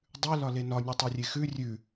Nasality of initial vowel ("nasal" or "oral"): oral